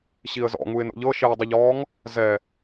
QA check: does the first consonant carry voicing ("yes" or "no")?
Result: no